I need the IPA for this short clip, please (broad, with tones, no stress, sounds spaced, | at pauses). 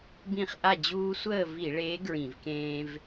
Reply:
b ĩ˥˨ χ ʔ a˥˨ d͡ʑ uː˦ sʷ əː˥˨ v i˧˩˧ ɭ e˨˥ ɡ ɹ ĩ˧˩˧ v k ẽː˦ v